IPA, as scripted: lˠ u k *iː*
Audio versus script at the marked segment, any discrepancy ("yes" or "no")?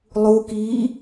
no